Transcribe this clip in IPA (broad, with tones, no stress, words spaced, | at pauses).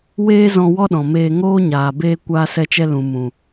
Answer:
weː˦ zɔ̃˧ wɔ˦ɗɔ̃˨meː˧ ŋoː˦ɲaː˨ beː˧ kʷaː˧sɛ˧t͡ʃɛ˧ lũ˨ mũ˨